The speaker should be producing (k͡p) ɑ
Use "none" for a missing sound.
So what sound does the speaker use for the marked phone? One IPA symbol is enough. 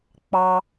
k͡p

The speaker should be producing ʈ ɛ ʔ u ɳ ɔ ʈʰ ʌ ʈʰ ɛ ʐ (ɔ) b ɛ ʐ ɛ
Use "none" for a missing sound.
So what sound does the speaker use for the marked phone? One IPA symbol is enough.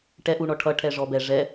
ɔ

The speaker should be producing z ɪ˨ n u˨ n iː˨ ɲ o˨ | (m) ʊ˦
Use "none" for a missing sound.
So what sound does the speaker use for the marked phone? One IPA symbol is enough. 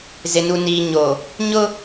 ɲ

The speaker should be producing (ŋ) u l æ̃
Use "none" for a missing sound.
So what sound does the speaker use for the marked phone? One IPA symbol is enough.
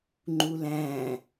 ŋ͡ǃ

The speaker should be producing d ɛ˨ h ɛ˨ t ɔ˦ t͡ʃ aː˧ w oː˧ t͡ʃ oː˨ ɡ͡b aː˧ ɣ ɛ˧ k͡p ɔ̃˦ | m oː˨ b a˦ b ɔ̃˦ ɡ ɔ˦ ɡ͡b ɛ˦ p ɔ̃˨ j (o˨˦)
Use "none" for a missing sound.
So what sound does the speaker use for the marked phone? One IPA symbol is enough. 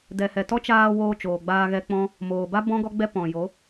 o˨˦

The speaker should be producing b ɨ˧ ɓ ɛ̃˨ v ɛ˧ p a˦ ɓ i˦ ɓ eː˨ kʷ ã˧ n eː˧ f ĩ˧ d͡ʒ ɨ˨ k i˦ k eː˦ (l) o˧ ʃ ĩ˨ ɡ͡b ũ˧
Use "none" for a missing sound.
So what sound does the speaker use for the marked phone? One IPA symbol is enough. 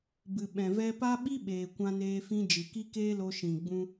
l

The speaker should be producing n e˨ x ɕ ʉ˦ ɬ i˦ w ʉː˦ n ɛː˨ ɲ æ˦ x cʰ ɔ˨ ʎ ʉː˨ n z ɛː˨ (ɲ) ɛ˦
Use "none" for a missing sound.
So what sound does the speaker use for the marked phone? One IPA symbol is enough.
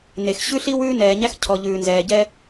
ɟ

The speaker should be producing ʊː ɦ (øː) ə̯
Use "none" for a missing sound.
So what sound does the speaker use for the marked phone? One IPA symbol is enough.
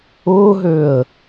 øː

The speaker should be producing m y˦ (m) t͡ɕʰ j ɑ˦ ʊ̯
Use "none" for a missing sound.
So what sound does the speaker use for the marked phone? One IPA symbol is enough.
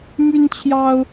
n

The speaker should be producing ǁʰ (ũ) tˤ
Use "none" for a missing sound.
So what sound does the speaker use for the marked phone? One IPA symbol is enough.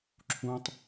ũ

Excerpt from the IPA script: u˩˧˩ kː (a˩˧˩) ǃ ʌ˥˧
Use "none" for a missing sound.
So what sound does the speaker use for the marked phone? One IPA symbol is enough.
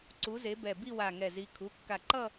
a˧˩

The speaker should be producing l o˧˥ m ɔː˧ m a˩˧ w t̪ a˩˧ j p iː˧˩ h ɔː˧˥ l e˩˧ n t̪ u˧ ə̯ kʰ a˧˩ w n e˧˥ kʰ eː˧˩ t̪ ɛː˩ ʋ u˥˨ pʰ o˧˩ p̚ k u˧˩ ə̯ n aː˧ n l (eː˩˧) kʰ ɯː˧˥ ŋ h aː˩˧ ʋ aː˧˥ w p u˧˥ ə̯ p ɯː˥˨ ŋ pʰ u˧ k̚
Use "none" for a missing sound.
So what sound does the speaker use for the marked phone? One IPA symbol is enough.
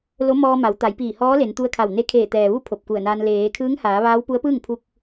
eː˩˧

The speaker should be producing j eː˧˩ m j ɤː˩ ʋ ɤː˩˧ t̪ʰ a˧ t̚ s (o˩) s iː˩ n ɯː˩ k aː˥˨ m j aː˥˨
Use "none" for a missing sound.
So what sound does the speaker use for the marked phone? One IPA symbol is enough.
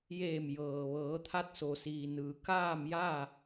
o˩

